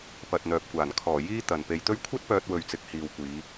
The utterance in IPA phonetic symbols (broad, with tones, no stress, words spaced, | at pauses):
pɐ˨t̚n̪œː˨p̚kʷaː˨˩n kʰɔː˨˩ jiː˥t̪ɐ˨n pe˨jt̪ɵ˥ɥ kʷʰɐ˥t̚pœː˧t̚ wɵ˨ɥt͡sɪ˨k̚ hiː˨wkʷiː˨˧